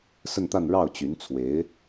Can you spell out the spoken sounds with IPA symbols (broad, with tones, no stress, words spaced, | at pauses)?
sə˥˧nt̪a˥˧n ɻɑ˥˩ʊ̯t͡ɕy˧˥n t͡sʰwe˧˥ɪ̯